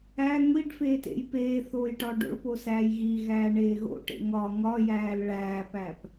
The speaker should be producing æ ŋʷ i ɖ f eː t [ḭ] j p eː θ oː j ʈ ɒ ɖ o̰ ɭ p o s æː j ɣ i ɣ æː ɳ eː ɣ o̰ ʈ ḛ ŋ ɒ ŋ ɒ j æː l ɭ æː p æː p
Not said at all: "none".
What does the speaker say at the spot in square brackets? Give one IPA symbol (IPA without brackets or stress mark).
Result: ḛ